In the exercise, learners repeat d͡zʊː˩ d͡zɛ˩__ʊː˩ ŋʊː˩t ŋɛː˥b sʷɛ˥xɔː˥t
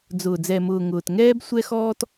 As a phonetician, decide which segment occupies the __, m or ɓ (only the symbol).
m